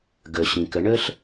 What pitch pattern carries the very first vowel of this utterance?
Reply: low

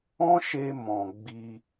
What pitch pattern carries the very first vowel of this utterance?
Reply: high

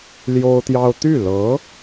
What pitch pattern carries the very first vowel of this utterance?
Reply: high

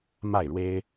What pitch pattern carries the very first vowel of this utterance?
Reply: falling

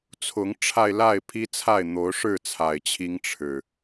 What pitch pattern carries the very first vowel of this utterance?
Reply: rising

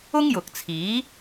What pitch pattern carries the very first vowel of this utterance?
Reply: high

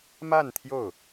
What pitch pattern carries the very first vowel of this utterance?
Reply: falling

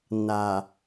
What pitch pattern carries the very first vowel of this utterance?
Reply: low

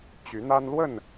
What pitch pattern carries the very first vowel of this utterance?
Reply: rising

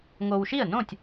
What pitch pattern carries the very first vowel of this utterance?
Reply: low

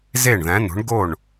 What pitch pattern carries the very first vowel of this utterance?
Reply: falling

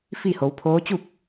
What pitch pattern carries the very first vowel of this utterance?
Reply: falling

